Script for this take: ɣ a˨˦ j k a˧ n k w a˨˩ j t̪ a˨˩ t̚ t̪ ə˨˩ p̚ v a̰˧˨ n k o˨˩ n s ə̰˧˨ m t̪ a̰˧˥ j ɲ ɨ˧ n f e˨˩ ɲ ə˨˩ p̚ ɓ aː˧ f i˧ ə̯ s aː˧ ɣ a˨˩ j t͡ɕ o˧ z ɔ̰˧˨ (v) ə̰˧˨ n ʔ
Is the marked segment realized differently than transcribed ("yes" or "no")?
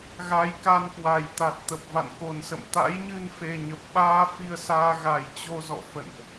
yes